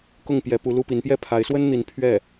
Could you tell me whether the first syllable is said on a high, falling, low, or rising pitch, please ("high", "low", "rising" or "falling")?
falling